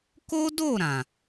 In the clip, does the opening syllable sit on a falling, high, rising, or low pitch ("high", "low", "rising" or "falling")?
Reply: high